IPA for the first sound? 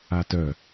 a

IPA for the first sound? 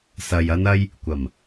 s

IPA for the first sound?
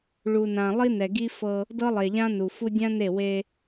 ɭ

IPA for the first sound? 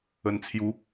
ə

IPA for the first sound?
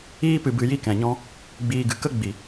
iː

